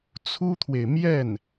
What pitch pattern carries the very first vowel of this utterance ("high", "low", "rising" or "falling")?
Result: high